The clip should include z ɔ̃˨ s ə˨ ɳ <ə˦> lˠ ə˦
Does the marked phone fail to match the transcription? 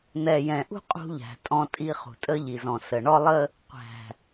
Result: yes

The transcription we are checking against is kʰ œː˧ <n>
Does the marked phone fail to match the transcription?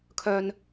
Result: no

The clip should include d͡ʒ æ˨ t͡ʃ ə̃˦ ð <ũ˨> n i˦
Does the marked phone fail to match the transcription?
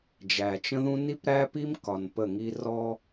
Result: yes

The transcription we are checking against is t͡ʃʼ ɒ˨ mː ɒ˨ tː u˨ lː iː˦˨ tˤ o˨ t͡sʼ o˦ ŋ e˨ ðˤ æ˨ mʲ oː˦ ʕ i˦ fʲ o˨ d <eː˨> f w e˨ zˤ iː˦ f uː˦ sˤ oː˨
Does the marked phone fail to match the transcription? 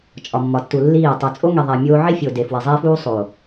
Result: yes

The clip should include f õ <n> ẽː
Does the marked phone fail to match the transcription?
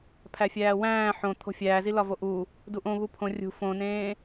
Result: no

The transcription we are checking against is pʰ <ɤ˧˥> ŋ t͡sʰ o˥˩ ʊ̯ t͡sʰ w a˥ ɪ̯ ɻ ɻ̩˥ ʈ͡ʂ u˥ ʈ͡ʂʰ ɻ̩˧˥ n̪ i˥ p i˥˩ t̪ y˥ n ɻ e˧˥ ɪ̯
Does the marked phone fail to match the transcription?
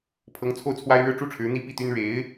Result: no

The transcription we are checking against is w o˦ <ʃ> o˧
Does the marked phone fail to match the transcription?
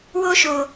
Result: no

